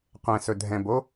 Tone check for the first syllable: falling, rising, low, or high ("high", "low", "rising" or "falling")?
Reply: low